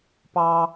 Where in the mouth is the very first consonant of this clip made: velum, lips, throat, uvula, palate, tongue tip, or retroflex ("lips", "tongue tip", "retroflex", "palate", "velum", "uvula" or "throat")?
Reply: lips